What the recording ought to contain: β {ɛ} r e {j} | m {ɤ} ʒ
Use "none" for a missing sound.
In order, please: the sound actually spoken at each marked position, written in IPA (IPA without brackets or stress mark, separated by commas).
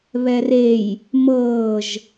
ɛ, j, ɤː